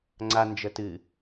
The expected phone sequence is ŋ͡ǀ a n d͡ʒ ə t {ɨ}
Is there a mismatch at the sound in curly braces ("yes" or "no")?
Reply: no